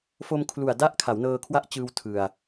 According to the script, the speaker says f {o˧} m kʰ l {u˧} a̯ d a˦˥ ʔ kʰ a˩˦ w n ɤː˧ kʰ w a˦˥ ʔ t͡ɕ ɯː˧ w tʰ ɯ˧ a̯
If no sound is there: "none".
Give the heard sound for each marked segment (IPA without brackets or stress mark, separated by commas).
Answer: o˧, u˨˩